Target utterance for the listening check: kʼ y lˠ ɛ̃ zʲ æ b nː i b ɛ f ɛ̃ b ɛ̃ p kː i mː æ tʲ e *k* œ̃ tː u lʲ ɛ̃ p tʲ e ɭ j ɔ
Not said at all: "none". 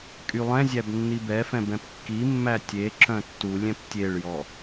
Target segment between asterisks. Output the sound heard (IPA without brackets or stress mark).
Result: ǁ